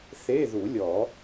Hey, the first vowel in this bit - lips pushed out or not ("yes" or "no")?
no